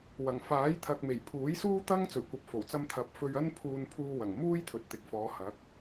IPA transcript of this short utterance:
wɐ˨˩ŋfaː˨˥j t̪ʰɐ˨k̚me˨˩jpʰuː˨˥jsuː˥ t̪ɐ˥ŋ t͡sɵ˨˩ɥkʷɐ˨p̚fo˨˩wt͡sɐ˧m t̪ʰɐ˨p̚fɵ˧ɥ ɐ˥npʰuː˧n pʰuː˧wɐ˨˩ŋ muː˥jt̪ʰɵ˨t̚t̪ɪ˨k̚fɔː˨˧ hɐ˨˥k̚

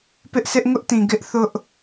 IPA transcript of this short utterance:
pɪ˦ʔsʰɪ˦ʔ ŋʊ˦ʔtĩ˨ ɡɪ˦ʔ θʊ˦ʔ

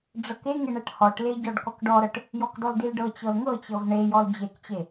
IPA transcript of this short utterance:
ɖ͡ʐɤkeŋe ɳɛʈhɔʈle ɟɔɖkɔkɖɔɾɤʈ | jɔkdɔldilɖɤ t͡ɕɤlŋɤt͡ɕɤv ɳe jɔld͡ʑekt͡ɕe

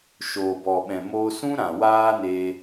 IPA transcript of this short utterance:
ʃoː˨bɔ˨ ɓɛ̃˨moː˧sũ˦ɾã˨ waː˦neː˧

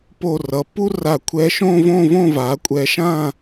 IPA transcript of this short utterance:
po˧˩rʌ˩˧pu˥ra˧˩ kʷʰɛ˧ʃõ˥˧võ˥˧võ˥˧ va˩˧kʷʼɛ˧ ʃã˥˧

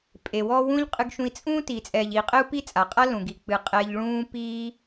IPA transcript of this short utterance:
pʼe˨wɔ˦ wũ˦ʎ qʼɨ˧ɡʃũ˧i̯ t͡sʼũː˦ tiː˨t͡sʼɛː˨ʎiː˨qʼɘ˦u̯ pi˦t͡sʼa˨qʼa˦lũ˨ ɡi˨ k͡pɨ˧ qʼɛ˧ʎɭũː˦piː˦

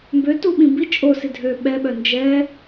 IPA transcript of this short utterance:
mbø tuɓĩ bi t͡ʃʼosɪ dʱø ɓɛɓœ nd͡ʒɛ

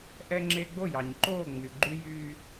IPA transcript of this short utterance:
ʔɛ˦ŋ͡ǁe˦ ɡ͡bo˦˨jɑ˨ɲǃoː˦˨ ŋ͡my˨ɡ͡ǃy˦jyː˦

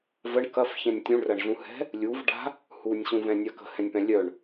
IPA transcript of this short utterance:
vəɳ kɐfçɛ̃nʲ tʲũɳrɐɳɮũhɛ̤ | lʲuv ɖa̤ | hunʲɕũvɛ̃nʲa kə̤hɛ̃nʲpɛ̃ lʲœɳ

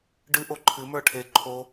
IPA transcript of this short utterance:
ɖɨ ʔoǃʰɨ mə˞ʈʰe ǃʰo

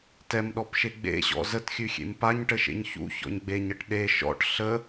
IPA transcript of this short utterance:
tɛmɗɔpʃe ɡ͡bḛɕɔ̰ zətxʲʉxʲḛm paɲʈəʃḛɲ çṵçɔ̰ɲ ɡ͡beɲəʈ ɗe ʃɔ̰ʈ ɬə

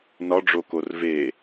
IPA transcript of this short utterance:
nɒɖ͡ʐokor ve

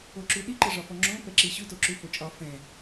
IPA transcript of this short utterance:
oǁʉɗi ǃəʐɒfɔŋ͡ǁõ pɛǁiɕʉ toǁʉfot͡ʃʼɒ fɛ̃

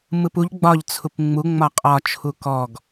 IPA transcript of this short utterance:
mɯpuʎ ɡ͡bɒʎ t͡sʰupŋ͡mu ŋ͡mɒqʼɒ t͡ʃʰukɔɡ

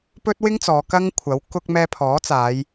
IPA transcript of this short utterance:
pɵ˥t̚wɪ˥ŋt͡sɔː˨˧ kɐ˥ŋkʷʰɐ˨˥w kʊ˧k̚ mɛː˧pʰɔː˨˥ t͡saː˨˧j

